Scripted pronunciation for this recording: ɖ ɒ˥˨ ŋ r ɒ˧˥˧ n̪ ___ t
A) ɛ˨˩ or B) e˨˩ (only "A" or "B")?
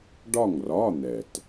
A